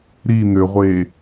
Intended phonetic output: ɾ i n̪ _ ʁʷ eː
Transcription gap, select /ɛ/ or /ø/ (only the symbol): ø